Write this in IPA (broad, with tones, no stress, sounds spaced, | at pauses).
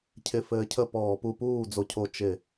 cʰ ɪ˧˩ f ɘː˧ cʰ ə˥˩ p ɔː˧˩˧ p u˧ p uː˥˩ d͡z o˧ cʰ o˧˩ t͡ʃ ɪ˧˩˧